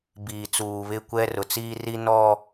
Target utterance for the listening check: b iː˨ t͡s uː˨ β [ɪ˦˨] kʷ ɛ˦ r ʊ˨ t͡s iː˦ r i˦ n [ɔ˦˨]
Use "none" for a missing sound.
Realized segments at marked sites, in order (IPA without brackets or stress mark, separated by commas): ɪ˦˨, ɔ˦˨